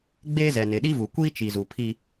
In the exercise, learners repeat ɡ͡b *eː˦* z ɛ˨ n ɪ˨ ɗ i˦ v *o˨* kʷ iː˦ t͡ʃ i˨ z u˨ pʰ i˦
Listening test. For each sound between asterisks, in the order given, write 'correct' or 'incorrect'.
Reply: correct, incorrect: u˨

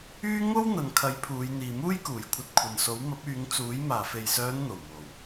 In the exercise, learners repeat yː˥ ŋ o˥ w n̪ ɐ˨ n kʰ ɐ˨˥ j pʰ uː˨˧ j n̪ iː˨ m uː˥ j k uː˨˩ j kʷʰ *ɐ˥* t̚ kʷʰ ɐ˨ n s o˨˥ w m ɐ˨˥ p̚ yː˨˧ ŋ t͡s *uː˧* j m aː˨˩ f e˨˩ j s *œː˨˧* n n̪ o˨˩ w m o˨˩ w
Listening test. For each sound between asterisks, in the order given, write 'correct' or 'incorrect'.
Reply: incorrect: ɐ˧, incorrect: uː˨˥, correct

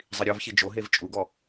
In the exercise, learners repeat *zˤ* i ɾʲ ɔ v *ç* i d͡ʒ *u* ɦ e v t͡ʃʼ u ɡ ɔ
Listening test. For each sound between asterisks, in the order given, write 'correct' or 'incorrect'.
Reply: correct, correct, incorrect: o

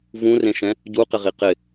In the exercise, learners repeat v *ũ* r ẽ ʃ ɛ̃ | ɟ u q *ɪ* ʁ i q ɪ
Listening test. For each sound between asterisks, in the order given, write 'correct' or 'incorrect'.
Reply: correct, correct

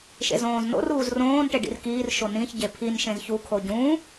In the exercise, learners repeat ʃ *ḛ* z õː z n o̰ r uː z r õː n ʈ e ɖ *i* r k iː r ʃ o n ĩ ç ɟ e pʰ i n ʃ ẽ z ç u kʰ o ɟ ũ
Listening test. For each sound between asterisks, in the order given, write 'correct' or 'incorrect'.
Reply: correct, incorrect: ḭ

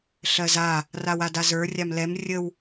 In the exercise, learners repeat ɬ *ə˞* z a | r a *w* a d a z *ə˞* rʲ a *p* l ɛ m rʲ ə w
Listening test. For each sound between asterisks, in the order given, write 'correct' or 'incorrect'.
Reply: incorrect: ɜ, correct, correct, incorrect: m

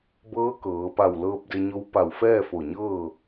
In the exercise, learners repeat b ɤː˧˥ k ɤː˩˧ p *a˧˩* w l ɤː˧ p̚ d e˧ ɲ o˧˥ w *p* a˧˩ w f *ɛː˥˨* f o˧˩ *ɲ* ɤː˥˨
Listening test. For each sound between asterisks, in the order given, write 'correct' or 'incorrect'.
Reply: correct, correct, correct, correct

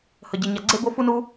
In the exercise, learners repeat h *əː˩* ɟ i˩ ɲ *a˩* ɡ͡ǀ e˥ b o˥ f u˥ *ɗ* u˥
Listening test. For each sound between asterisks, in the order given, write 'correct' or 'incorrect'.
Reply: incorrect: ə˩, correct, incorrect: n

